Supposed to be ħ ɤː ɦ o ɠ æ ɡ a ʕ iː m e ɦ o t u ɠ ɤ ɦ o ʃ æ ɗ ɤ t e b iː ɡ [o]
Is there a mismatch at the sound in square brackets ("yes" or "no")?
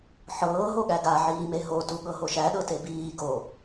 no